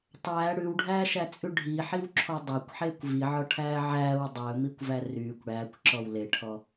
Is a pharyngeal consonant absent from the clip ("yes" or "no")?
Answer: no